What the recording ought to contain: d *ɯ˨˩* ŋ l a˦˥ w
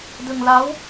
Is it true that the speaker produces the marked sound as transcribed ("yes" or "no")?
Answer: no